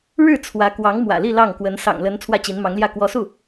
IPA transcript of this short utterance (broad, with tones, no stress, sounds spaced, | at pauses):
ɻ ɻ̩˥˩ t͡sʰ w ä˧˥ k w ɑ˧˥ ŋ m w ä̰˨˩ l i˥˧ l ɑ˥˩ ŋ k w ə˧˥ n s ɑ̰˨˩ ŋ l ə˧˥ n t͡sʰ w ä˥˩ t͡ɕ i˧˥ n m ɑ˧˥ ŋ l j ä˥˩ k w ɔ˧˥ s u˥˩